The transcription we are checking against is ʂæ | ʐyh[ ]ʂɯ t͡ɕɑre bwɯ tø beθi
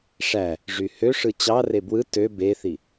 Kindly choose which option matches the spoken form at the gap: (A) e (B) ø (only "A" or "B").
B